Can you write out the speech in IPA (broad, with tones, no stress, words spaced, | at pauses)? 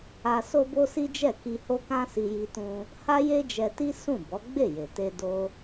a˧ so˦bo˦si˦d͡ʒɛ˦˨ ki˧ho˦kã˦si˧ ji˧tũ˧ | ha˦je˦d͡ʒɛ˧ti˦ sũ˦˨ bɔ˨˦ɡ͡be˦˨je˨ te˧do˧